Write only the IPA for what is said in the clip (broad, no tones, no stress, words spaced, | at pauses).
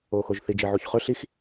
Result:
oːxoʒθi d͡ʒeʕuçχɵ ɬix